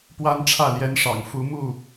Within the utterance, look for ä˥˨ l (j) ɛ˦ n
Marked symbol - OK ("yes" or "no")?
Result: yes